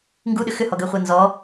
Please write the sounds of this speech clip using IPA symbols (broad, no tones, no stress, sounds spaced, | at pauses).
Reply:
ŋ ɡ u ɗ ʏ x ʏ h ɔ ɡ əː χʷ əː n z ɔ